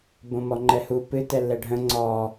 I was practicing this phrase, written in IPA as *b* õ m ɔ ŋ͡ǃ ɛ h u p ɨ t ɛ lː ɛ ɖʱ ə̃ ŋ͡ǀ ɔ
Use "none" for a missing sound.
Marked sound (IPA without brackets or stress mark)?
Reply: b